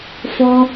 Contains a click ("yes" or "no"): no